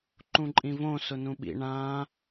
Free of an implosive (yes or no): no